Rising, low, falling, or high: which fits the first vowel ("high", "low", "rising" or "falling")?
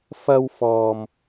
high